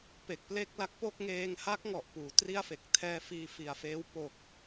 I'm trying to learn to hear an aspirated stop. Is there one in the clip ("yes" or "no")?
yes